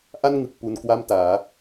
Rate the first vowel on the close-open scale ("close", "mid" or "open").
open